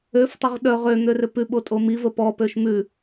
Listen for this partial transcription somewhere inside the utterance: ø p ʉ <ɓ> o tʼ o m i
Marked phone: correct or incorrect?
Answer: correct